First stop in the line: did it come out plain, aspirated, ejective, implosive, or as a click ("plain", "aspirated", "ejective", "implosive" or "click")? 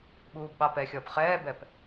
implosive